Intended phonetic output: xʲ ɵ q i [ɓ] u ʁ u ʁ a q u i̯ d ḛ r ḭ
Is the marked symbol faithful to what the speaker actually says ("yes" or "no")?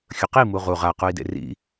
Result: no